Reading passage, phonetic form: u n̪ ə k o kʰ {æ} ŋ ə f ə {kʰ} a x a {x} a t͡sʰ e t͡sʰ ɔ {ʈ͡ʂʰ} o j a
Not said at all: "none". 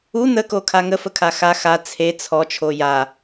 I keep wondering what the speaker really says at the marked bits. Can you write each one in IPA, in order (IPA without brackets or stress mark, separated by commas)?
a, kʰ, x, t͡ʃʰ